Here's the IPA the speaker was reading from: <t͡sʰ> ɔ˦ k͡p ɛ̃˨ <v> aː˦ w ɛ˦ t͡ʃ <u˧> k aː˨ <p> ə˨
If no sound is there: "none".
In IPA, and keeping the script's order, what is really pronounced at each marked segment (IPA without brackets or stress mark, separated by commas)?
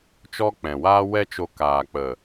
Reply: t͡ʃ, w, o˧, k͡p